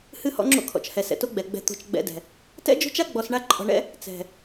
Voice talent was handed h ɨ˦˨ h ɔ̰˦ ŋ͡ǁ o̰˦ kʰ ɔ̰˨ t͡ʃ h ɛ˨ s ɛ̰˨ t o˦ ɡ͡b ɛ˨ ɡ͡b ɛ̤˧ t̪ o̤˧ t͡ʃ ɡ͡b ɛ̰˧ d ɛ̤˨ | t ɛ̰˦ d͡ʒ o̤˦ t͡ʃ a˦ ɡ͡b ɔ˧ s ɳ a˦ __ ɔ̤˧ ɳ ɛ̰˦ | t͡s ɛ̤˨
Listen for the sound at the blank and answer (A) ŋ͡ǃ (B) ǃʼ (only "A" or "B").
B